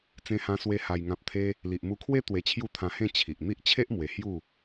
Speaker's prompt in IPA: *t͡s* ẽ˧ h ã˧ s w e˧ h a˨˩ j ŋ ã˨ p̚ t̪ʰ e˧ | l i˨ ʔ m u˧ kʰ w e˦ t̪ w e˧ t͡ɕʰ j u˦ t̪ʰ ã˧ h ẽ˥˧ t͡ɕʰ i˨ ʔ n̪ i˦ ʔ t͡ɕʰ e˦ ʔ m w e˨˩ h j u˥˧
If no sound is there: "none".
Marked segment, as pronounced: t͡s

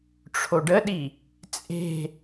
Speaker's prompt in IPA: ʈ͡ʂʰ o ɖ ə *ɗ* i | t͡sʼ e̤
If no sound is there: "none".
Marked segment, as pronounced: ɗ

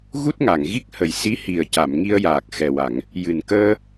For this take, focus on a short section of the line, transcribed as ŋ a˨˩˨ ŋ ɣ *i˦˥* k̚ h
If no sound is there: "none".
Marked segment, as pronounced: i˦˥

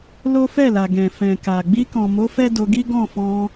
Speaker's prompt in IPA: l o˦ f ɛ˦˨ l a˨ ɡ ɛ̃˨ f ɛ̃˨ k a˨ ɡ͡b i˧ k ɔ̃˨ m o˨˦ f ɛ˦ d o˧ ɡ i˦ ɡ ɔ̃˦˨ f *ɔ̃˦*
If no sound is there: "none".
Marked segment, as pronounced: ɔ̃˧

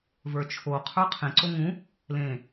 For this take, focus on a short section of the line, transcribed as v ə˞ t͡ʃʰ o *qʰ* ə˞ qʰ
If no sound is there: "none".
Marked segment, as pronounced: qʰ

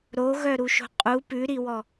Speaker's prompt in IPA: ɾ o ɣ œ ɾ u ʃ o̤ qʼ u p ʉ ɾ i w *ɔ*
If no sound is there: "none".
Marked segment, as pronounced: ɔ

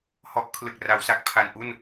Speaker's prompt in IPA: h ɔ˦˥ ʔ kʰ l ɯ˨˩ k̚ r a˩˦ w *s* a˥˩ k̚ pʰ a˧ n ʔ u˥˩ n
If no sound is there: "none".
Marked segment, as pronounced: s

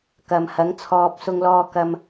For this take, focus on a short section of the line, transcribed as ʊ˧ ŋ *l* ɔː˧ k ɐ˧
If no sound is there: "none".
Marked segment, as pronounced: l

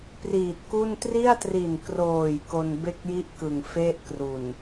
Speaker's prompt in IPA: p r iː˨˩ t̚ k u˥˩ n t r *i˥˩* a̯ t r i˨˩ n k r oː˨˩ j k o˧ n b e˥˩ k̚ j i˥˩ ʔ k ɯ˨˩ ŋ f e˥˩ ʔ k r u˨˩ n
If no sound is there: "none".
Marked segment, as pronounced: i˥˩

